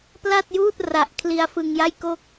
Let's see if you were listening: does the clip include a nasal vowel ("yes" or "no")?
no